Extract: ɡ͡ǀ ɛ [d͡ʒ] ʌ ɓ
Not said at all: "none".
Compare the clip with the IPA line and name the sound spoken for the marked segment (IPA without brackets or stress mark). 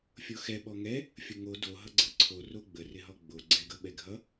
ɡ